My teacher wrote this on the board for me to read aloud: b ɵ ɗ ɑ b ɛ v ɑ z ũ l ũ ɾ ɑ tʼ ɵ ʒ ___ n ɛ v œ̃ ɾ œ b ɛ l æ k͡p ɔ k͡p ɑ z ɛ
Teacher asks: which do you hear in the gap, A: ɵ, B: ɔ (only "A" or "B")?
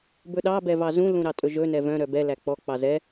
A